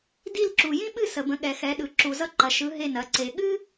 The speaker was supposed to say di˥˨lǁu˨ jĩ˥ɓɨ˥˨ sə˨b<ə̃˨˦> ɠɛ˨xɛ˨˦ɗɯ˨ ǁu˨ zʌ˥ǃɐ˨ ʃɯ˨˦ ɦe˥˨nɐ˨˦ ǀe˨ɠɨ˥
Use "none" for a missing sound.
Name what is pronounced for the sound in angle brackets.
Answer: ə̃˨˦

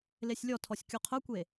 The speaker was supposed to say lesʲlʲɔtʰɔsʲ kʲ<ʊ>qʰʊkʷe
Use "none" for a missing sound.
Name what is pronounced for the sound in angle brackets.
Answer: u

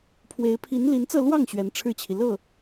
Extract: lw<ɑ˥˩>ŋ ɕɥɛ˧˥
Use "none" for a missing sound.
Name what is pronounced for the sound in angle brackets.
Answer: ɑ˥˩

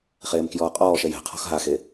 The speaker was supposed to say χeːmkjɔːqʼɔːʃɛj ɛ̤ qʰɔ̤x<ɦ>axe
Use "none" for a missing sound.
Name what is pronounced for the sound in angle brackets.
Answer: ɦ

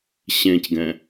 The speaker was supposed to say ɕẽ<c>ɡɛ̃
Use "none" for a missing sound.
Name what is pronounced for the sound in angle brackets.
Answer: c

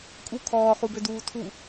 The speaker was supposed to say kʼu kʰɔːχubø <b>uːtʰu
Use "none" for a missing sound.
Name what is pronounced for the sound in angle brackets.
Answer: d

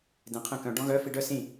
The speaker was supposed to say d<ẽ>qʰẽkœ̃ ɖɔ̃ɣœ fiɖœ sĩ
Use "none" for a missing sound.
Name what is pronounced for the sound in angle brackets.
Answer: ẽ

